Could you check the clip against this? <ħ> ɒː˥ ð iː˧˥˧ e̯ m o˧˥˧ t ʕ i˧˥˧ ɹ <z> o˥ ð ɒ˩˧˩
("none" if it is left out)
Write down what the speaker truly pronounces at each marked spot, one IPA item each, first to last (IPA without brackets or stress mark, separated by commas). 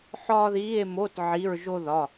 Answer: ħ, ʒ